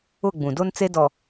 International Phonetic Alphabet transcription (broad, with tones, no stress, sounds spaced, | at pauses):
ʊ˦˨ ɡ͡b ũ˨ d o˦ n t͡s e˦ d ɔ˨